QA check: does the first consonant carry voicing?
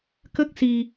no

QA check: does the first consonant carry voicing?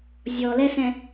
yes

